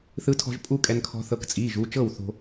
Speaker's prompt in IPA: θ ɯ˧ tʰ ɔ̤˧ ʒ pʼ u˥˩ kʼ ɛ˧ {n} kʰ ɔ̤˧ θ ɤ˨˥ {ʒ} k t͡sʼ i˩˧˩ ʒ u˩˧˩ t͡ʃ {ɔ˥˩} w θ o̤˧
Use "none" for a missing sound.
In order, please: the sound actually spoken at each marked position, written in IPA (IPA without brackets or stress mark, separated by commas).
n, none, ɤ˥˩